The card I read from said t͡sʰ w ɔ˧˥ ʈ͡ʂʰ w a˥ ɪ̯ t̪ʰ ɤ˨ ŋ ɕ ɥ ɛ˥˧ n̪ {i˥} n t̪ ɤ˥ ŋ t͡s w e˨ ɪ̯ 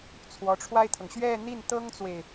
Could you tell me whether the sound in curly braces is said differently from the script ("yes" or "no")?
yes